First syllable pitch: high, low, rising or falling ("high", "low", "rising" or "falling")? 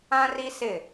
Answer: high